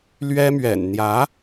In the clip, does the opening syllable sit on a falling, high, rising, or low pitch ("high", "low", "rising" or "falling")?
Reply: high